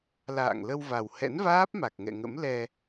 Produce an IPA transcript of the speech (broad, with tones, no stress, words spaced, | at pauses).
la̰ː˧˨ŋlə˧wva˨˩w hɛ̰˧˥nvaː˦˥p̚ma˨˩k̚ŋɛ̰˧˨ ŋə̰˧˥mlɛ˧